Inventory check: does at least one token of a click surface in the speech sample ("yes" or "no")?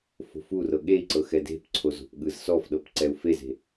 yes